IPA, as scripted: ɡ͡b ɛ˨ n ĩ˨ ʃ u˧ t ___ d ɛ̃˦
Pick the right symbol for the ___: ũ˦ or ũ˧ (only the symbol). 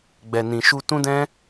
ũ˦